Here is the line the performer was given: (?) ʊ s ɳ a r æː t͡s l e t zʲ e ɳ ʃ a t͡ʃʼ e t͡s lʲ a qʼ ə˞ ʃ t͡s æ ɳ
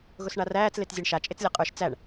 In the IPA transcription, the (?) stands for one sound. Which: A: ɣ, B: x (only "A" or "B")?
A